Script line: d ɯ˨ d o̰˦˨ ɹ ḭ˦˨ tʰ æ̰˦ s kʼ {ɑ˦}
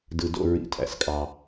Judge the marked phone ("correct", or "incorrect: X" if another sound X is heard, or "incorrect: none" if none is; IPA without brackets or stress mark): correct